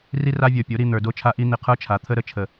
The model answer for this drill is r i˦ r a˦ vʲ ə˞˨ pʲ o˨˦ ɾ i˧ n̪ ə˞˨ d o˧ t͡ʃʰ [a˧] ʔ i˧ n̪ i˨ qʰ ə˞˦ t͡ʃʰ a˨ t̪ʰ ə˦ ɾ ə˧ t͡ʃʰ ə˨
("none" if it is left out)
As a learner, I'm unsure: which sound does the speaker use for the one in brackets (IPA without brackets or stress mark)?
a˧